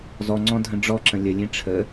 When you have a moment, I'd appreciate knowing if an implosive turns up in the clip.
no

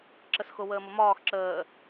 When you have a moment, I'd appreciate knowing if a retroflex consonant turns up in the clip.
no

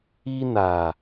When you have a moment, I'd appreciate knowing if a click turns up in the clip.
no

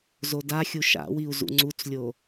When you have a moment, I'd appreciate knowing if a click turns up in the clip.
yes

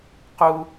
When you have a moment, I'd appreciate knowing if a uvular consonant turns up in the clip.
yes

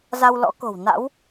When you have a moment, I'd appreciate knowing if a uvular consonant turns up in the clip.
no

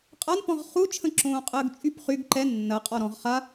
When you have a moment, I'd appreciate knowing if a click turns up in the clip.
yes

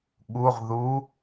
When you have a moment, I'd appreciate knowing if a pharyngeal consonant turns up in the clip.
no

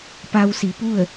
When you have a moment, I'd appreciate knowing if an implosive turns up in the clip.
no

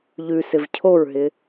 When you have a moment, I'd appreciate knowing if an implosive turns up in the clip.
no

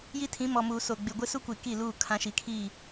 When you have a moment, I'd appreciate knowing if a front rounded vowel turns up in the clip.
no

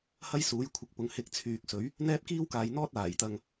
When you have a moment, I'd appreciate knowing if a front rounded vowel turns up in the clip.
yes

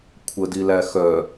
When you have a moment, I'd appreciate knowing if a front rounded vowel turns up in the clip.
yes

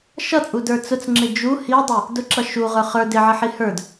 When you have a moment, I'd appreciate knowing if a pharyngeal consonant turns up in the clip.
yes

